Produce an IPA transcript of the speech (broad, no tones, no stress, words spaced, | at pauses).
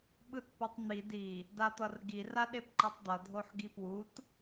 ɓɯtpʌtˤn̪i di | dat̪ʌrɡir aɗepǃitˤd̪ʌ dʱoħɡipwut